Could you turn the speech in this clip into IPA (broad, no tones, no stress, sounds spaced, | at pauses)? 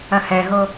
ɐ h ɛ ɦ o